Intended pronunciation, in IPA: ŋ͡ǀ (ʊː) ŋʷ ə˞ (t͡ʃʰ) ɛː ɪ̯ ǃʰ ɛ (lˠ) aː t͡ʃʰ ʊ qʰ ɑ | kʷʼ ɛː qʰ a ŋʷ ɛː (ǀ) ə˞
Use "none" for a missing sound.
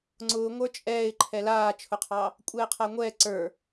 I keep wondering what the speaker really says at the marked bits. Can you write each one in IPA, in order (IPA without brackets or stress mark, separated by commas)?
ʊː, t͡ʃʼ, l, ǀ